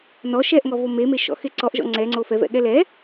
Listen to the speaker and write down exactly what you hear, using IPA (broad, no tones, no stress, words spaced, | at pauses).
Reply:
nɔ ʃɛʔŋɔvo memeʃɔ̰xe ǀɔʔʒɔ̰ ŋ͡ǀɛŋ͡ǀo fɛvɛ̰ɠɛ lɛ